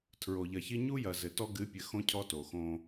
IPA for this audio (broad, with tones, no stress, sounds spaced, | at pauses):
tʰ ɹ o˨ ʎ ɐ˨ ç i˦ ɲ u˦ j ɐ˨ z ɘ˨ t ɔ˦ ɡ ɨ˨˦ pʲ ɘ˨ x õ˦ cʰ ɔ˦ t o˨ x õ˦